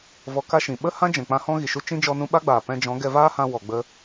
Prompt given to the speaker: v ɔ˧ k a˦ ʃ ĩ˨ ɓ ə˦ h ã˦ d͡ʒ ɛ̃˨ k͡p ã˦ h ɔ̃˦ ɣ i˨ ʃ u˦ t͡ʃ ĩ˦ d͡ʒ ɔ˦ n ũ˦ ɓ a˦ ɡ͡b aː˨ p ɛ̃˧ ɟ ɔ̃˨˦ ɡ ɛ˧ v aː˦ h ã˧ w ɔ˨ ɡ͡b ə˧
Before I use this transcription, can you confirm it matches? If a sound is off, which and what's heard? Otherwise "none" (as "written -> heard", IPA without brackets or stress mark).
ɟ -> d͡ʒ